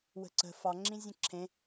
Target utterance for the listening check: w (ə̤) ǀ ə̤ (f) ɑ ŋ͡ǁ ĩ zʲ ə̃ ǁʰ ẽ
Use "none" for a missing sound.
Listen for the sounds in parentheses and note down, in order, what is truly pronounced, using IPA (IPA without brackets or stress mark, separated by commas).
ə̤, f